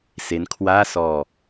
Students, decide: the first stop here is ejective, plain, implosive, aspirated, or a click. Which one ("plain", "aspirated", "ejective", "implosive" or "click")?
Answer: aspirated